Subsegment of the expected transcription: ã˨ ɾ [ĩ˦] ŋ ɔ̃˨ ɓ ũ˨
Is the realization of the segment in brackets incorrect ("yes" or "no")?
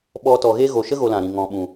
yes